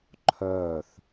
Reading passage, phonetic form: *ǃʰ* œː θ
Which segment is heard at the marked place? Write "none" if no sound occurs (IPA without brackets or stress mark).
ǃʰ